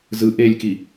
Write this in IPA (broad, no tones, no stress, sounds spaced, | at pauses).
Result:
z ɯ ʔ e lʲ k i